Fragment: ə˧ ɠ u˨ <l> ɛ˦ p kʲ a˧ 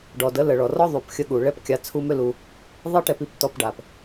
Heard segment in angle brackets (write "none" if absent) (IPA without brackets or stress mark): ɭ